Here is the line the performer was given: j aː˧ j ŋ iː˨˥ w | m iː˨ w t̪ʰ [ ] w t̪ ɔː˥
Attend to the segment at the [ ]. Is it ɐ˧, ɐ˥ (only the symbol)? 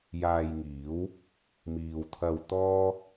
ɐ˧